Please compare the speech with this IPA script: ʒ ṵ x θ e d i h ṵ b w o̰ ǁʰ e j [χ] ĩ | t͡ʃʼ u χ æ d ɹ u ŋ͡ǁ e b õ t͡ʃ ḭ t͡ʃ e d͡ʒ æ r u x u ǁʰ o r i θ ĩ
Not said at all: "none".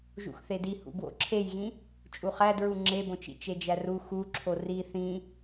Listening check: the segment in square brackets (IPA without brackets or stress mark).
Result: ɣ